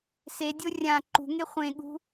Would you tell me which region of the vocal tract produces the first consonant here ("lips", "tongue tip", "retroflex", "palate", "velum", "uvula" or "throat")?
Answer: tongue tip